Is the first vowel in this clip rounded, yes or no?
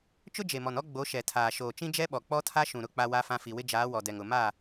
yes